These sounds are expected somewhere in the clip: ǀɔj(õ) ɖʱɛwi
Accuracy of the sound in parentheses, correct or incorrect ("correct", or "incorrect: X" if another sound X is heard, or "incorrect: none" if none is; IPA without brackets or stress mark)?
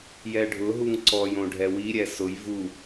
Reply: correct